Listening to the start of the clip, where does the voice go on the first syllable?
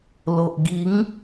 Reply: low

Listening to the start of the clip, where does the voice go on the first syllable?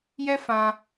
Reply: high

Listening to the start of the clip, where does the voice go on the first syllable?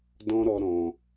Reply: high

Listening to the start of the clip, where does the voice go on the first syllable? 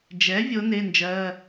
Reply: rising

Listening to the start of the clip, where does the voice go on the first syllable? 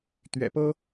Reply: low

